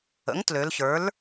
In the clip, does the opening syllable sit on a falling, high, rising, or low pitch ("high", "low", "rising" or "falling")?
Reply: rising